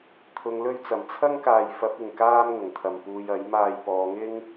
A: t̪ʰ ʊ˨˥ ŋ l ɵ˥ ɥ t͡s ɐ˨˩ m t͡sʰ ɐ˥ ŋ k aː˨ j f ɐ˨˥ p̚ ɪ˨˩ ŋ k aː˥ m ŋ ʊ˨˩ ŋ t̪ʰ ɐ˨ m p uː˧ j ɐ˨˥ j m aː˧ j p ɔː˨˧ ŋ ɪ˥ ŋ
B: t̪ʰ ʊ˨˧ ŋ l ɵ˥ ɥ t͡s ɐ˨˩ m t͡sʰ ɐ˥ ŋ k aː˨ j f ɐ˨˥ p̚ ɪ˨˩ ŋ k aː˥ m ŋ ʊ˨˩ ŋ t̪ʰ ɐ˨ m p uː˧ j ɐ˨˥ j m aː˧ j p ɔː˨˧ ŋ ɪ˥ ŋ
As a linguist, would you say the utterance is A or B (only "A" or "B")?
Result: B